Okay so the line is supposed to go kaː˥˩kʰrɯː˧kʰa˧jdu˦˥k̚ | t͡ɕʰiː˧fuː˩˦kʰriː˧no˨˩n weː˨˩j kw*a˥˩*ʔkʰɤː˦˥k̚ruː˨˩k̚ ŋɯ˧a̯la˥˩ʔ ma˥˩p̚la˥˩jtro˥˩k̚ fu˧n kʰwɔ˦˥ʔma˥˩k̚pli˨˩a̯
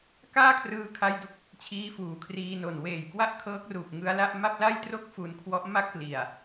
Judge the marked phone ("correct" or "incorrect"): correct